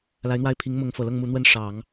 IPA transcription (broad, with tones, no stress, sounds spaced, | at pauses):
l a˧˥ ɪ̯ n̪ w a˥˩ ɪ̯ pʰ i˧˥ ŋ m ʊ˧˥ ŋ f ɤ˨˩ l ɤ˥˩ ŋ m u˧˥ n̪ w ə˥ n ʂ ɑ˨˩˦ ŋ